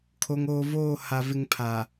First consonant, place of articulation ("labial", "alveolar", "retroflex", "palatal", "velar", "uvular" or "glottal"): velar